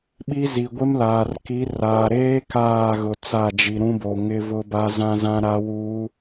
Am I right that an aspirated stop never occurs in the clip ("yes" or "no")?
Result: yes